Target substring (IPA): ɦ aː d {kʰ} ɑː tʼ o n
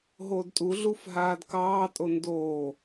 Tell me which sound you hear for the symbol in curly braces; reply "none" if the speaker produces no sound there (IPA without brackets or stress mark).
k